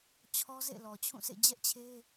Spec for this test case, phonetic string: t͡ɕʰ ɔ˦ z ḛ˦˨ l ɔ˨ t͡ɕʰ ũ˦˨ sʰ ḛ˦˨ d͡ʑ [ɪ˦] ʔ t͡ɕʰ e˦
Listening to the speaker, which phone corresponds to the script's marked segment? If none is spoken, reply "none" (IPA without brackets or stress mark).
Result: ɛ˦